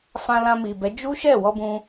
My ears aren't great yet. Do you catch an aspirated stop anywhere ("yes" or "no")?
no